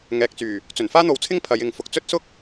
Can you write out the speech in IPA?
ŋ ɛː˨ k̚ t͡s yː˨˩ | t͡s ɵ˨˩ n f aː˥ n̪ o˨ w t͡sʰ ɪ˥ ŋ pʰ ɐ˨˧ j ɪ˨ ŋ f ʊ˨ k̚ t͡s ɵ˥ t̚ s ʊ˥ k̚

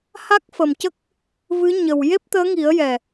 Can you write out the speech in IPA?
h a˦˥ k̚ f ə˨˩ m c ə˦˥ k̚ | v ɨ˧˥ ɲ ə˨˩ w j e˦˥ p̚ t̪ əː˧˥ ŋ i˨˩˦ ə̯ j ɛ˨˩

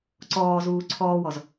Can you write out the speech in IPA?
ǀ ɔː z uː ǀʰ ɔː w ɔ z

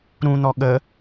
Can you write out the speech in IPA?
ɾ ũ n̪ ɔ ɠ ə

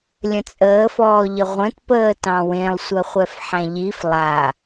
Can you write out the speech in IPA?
lʲ ə̃ t͡sʼ əː f ɔː ʎ ə ʁʷ ə̃ t p əː t ɑ̃ w ẽ lˠ sʷ ɜ χʷ ɛ f ħ æ̃ ʎ i f lˠ a

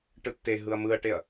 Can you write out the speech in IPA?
ʈ ɯ tː e ɦ ɯ ɐ̯ m ɯ ɐ̯ ʈ e ɐ̯

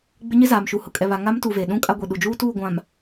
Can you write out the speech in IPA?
ɡ͡b ɪ˦ ɲ ɪ˦ z aː˨ m ʃ u˨ h ʊ˨ kʼ ɛ˨ β a˨ ŋ a˦ m t uː˨ v eː˨ ɗ ũ˦ kʼ a˦ ɡʷ i˨ ɗ u˨ d͡ʒ uː˦ t uː˦˨ ɡʷ ã˨ m

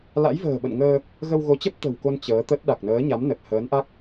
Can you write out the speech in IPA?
l a̰˧˥ j v ə̤ː˨˩ ɓ ə̰˧˨ n ŋ əː˧ | ɣ ə˧ w ɣ o˨˦ t͡ɕ ə˦˥ p̚ t̪ ə̤˨˩ w k o˧ n t͡ɕ əː˨˦ t̪ ə˦˥ t̚ ɗ a˨˩ k̚ n əː˨˦ ɲ a˨˦ m n ə˨˩ t̚ h əː˨˦ n ʔ a˦˥ k̚

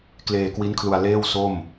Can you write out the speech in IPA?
k l eː˧ k w i˦˥ n kʰ l u˧ a̯ l eː˥˩ w s o˥˩ m

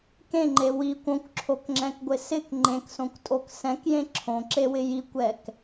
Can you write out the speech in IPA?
k ẽ ŋ͡ǃ e w i kʷ õ kʷ ǁʰ o k ŋ͡ǁ ɛ̃ k ɡʷ ɪ s ɪ k ŋ͡ǃ ẽ k s õ kʷ tʼ o k s ɛ̃ k j ẽ ǁʰ õ ǁ e w ɪ j i kʷ ɛ k

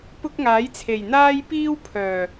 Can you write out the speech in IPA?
p ʊ˥ k̚ ŋ aː˨˥ j t͡sʰ e˨˩ j n̪ aː˥ j p iː˥ w pʰ œː˨˩

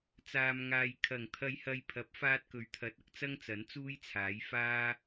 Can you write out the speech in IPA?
t͡s aː˨ m ŋ aː˨ j kʰ ɐ˨˩ ŋ t̪ʰ ɐ˧ j h ɐ˧ j pʰ ɐ˨˥ p̚ f aː˧ t̚ k ɵ˨ ɥ t̪ʰ ɐ˨˥ t̚ ɐ˧ k̚ t͡s ɐ˥ ŋ t͡s ɐ˨˥ n t͡s uː˥ j t͡sʰ aː˨˥ j f aː˥

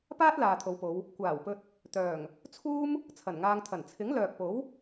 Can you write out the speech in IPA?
p aː˥ t̚ l aː˨ t̪ʰ o˨˧ w p o˨˧ w | kʷ aː˨˩ w p ɵ˧ t̚ | t̪ œː˨˩ ŋ | t͡sʰ uː˥ m | t͡sʰ ɐ˨˩ n ŋ aː˧ ŋ t̪ʰ ɐ˨˩ n t͡sʰ ɪ˨˥ ŋ l œː˨ k̚ p o˨˥ w

